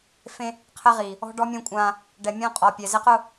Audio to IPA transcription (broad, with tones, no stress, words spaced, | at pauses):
fẽ˦ | qʰɛ˦ʁiː˨ | ɔ̤˦ɖɔ˦mʲɛ̃˦kʷʼãː˦ | ɖɛ˨ mʲɔ̃˦qʼɔ˨ pʲɛ˨ zɪ˦qʊ˦˨